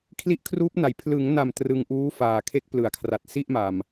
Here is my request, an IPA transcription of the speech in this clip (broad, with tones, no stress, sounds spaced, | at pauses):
kʰ l i˦˥ ʔ kʰ r uː˦˥ p̚ n a˩˦ j pʰ l ɯ˩˦ ŋ n a˨˩ m t r ɯ˧ ŋ ʔ uː˦˥ f aː˨˩ kʰ e˦˥ k̚ p l ɯ˩˦ a̯ kʰ r a˨˩ t̚ s i˥˩ ʔ m a˨˩ m